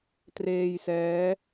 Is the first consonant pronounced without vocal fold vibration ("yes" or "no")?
yes